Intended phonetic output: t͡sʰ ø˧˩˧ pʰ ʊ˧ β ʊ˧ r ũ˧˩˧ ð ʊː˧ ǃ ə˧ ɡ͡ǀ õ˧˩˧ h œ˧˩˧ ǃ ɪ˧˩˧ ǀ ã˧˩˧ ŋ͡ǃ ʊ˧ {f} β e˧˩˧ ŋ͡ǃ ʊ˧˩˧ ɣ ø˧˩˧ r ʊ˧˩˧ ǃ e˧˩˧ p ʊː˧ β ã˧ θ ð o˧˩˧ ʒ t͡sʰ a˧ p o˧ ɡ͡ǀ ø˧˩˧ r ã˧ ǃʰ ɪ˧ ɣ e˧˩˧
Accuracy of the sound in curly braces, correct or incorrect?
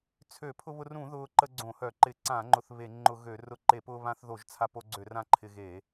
incorrect